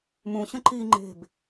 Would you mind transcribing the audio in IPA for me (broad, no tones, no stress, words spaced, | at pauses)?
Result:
mũɕə̃ ǃi ŋ͡ǃe̤b